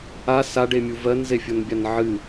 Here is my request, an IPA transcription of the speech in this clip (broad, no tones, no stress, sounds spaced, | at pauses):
a s a ɖ e mʲ u v ɜ n z e fʲ o n bʲ a n ʕ ɨ